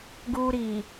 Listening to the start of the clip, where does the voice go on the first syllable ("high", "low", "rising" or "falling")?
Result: high